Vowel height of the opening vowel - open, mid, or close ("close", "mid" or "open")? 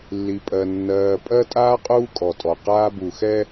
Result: close